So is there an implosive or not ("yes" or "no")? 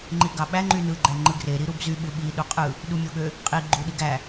yes